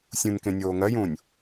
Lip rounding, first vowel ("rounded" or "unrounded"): rounded